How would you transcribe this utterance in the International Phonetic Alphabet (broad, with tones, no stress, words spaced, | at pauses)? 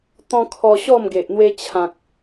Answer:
t̪ɔ̃˧ kʰɔ˧ ɕɔ˥˧mɡe˨ʔ n̪we˧t͡ɕʰã˨k̚